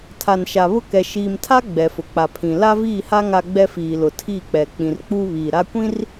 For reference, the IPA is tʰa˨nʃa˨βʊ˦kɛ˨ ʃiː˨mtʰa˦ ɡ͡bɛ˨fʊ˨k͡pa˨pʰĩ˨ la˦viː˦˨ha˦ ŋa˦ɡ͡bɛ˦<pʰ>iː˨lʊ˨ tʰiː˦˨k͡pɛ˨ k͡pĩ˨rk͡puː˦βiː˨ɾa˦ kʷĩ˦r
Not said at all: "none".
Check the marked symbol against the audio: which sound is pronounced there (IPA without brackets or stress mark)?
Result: f